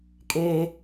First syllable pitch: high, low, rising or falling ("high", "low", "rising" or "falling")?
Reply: high